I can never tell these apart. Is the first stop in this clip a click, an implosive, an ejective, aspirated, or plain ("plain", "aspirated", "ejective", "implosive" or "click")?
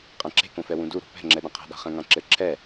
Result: ejective